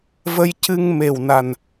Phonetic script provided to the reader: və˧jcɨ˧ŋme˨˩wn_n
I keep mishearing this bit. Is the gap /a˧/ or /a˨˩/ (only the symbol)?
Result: a˨˩